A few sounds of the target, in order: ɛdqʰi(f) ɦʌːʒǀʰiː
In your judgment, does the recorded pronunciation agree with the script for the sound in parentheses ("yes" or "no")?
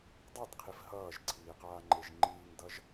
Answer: yes